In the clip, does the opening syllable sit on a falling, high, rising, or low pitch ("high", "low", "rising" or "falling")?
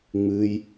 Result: high